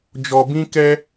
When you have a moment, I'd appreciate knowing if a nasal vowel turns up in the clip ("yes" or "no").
yes